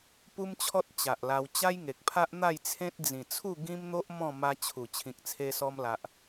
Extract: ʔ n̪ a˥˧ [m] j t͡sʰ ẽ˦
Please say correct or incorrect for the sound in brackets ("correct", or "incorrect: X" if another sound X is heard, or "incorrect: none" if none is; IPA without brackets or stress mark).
incorrect: none